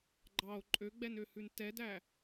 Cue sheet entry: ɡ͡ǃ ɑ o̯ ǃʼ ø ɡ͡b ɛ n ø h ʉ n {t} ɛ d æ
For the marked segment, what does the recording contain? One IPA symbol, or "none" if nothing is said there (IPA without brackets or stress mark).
t